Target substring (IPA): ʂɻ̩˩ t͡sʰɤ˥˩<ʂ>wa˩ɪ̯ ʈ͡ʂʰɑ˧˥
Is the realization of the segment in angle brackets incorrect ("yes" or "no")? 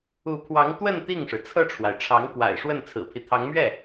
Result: yes